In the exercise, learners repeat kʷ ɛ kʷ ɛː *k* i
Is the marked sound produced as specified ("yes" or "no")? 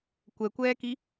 yes